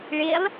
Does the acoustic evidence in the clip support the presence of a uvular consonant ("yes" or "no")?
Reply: no